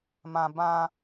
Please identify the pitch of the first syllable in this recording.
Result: low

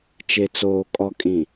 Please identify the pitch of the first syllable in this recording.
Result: low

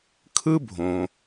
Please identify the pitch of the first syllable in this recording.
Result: high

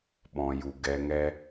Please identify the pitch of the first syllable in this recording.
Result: low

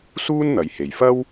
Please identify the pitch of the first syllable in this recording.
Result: high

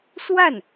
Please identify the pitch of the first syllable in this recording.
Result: falling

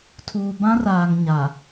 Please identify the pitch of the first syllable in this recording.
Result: low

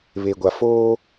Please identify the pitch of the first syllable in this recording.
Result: low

